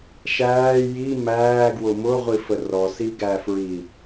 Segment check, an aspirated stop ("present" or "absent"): absent